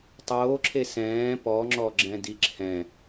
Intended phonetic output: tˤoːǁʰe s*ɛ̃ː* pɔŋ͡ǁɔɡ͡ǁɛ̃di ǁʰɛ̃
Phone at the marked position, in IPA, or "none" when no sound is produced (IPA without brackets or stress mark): ɛ̃ː